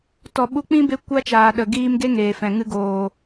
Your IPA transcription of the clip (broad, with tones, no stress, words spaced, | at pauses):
tɔ˨ɓu˧k͡pĩ˦ be˦ kʷa˦t͡ʃaː˨ɗə˨ ɡiː˧mɡe˦ ŋeː˨fɛ̃˨ ŋɨ˧ɡoː˨